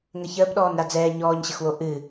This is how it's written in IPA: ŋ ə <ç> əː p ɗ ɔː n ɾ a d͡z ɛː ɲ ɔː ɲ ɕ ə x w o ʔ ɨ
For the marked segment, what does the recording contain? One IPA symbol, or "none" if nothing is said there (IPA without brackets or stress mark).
ç